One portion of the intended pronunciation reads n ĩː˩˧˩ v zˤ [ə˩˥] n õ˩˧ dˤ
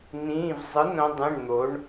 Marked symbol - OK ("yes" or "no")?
no